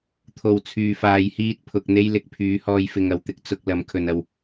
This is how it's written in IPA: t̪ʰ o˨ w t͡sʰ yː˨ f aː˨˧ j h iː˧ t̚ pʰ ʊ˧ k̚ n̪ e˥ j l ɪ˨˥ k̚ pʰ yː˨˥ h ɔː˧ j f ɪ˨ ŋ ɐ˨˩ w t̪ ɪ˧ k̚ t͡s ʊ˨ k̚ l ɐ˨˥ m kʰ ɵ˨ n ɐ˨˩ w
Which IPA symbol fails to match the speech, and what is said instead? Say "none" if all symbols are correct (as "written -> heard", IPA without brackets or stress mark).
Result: none